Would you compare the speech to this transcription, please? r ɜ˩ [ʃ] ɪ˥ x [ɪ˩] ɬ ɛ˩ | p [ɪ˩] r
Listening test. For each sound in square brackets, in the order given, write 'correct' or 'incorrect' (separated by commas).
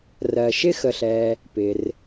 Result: correct, incorrect, correct